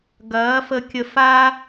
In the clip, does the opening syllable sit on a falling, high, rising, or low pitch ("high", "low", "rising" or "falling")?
rising